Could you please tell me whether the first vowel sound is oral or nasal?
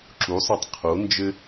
oral